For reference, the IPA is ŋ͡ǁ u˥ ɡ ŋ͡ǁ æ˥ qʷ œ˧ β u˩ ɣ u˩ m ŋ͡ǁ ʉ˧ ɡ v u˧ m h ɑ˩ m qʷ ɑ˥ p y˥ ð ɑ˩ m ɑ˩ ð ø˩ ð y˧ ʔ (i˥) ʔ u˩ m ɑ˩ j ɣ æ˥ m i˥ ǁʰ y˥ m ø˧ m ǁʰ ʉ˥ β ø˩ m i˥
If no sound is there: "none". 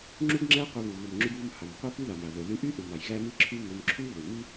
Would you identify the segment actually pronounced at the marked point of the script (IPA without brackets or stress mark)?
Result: y˥